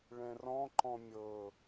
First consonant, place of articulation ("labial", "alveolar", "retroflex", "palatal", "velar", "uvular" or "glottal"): retroflex